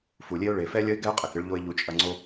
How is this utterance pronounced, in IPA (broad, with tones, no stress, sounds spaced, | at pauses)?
f u˨ lʲ e˧ ʊ̯ ɭ e˨ f ɛ˧ lʲ ɐ˦ ɪ̯ ɡ ɛ˦ ʊ̯ qʼ ɛ˨ k ɨ˧ ɭ ʎ o˧ ɪ̯ ʎ u˨˦ t͡ʃʼ ɐ˧ ŋ͡ǀ o˦